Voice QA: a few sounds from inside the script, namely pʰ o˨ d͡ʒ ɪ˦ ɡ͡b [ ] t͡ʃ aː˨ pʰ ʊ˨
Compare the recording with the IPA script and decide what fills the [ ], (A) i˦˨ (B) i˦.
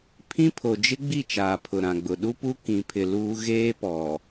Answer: A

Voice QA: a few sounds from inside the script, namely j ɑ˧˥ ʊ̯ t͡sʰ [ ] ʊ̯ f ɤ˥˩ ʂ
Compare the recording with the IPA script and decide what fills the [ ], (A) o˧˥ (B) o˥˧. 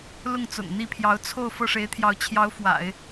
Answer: B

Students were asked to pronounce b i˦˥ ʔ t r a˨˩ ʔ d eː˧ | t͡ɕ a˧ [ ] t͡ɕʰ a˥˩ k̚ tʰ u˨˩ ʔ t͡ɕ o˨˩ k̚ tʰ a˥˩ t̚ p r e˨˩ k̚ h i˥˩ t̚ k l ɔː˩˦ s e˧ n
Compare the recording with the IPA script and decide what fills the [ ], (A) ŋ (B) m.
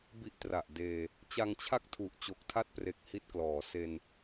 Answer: A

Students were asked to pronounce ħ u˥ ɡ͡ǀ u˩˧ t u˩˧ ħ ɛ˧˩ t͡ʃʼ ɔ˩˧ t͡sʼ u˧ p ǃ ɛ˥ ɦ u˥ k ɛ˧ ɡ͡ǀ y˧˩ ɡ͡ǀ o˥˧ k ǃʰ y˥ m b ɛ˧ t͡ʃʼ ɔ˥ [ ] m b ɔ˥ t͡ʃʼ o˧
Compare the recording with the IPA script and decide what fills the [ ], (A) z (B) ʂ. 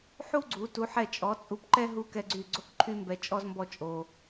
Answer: A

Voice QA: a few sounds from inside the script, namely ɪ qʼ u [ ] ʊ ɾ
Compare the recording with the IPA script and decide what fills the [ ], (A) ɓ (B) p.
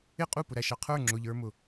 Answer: B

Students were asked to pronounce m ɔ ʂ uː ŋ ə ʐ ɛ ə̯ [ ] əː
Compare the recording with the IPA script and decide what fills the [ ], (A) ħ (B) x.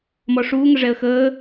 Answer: B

